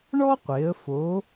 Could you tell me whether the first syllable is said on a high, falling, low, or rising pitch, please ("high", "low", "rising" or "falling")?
high